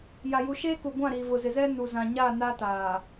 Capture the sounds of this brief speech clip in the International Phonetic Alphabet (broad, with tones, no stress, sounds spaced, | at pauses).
j a˨ j u˨ ʃ eː˦ k u˨ ɡʷ ã˦˨ ɾ iː˨ v ʊ˨ z ɪ˨ z ɛ˦ n u˨ z ã˨ ɲ a˦˨ n a˦ t aː˨